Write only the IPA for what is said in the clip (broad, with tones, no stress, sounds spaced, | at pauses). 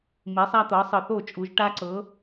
m i˨˦ sˤ a˦ t̪ ɤ˨˦ sˤ ɯ˨ θ o˥˨ t͡ʃʼ u˨˦ ʒ ʈ a˦ ǀ ɤ˨˦